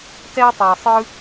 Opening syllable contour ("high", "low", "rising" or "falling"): high